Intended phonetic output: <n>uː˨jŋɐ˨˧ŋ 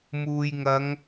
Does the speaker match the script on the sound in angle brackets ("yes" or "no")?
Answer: no